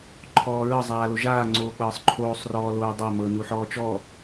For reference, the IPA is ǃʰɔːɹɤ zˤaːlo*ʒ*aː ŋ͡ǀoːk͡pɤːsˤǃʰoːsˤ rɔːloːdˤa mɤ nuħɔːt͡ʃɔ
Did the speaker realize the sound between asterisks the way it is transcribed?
yes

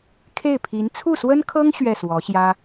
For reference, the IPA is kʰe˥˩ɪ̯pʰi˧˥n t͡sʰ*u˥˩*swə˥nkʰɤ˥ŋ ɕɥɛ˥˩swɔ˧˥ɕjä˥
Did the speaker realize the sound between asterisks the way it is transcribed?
yes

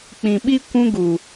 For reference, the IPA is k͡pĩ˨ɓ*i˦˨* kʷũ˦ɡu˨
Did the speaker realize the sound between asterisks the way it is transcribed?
no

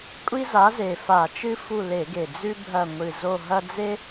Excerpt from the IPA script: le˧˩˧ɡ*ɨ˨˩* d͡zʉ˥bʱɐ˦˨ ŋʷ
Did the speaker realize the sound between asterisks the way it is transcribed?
no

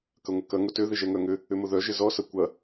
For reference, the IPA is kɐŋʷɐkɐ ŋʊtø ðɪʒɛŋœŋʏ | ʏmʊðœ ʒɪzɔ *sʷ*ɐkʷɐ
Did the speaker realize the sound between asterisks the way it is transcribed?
no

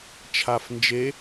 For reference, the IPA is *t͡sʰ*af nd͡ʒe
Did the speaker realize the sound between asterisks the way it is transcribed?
no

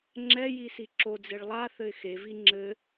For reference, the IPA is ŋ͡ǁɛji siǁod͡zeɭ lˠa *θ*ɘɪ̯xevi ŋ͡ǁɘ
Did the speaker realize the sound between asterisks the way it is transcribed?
yes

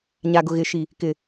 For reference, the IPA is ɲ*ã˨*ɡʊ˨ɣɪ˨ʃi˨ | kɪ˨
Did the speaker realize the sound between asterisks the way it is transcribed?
no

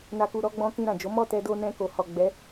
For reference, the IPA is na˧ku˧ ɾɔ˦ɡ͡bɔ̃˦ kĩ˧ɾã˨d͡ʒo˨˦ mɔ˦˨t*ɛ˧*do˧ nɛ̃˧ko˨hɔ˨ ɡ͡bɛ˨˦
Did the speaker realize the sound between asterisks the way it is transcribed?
yes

